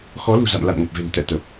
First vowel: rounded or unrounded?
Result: rounded